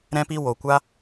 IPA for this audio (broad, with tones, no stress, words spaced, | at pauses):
ɾɛ̃˦pi˦ wo˧kʷa˦